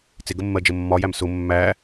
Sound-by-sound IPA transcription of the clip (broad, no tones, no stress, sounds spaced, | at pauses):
t͡s ɪ ɡ ə mː ɜ d͡ʒ ə mː ɒ j æ m s ʊ mː æ